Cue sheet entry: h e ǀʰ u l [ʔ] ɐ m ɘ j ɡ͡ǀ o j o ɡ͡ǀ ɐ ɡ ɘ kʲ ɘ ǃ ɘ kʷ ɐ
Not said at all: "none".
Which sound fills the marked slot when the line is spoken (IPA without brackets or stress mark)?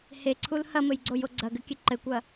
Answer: h